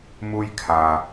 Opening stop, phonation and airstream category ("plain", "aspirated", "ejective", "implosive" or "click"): aspirated